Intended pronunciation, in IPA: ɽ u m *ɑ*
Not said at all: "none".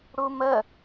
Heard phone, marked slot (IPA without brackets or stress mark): ə